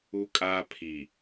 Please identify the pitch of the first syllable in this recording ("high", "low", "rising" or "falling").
high